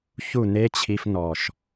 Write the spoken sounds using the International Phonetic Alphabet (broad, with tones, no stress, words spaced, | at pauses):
çu˦˨ne˦t͡ɕʰi˧f nɔ˨ʃ